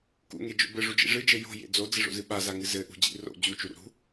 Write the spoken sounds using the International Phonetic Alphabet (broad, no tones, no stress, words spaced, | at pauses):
kṵŋed͡ʒo̰ bɘʐud͡ʒḭ ʐɨd͡ʒɘ jo̤jḛ d͡zod͡zɘʐo̰zɨ ɓazaŋɨ zɘʔṳd͡ʑḭ ro̰ d͡ʑut͡ʃuɾṵ ɾṳ